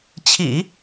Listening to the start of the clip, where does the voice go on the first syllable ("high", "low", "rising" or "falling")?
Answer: low